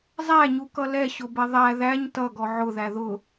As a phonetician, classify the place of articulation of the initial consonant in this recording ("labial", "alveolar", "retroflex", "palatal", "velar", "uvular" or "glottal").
alveolar